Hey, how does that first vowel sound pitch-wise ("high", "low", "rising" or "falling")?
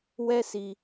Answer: high